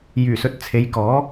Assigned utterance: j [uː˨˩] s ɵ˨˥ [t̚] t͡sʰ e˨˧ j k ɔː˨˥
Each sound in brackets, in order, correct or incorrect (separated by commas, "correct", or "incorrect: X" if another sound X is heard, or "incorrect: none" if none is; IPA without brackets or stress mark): incorrect: yː˨˩, correct